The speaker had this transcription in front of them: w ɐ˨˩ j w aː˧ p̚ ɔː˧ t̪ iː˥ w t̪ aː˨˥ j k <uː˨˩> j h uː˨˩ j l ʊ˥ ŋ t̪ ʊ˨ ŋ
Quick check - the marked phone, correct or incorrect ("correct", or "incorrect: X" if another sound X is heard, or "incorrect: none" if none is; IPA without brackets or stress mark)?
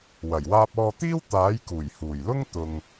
correct